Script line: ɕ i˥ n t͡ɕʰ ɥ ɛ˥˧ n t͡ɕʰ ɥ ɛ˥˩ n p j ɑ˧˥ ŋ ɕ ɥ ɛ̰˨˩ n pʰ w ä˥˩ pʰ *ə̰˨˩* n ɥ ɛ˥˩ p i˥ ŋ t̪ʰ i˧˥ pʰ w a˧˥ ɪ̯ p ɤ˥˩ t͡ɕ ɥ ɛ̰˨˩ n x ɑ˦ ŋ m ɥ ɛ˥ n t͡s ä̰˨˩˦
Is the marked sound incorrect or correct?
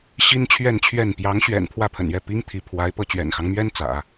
correct